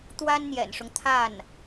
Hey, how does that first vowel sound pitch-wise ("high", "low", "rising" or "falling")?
high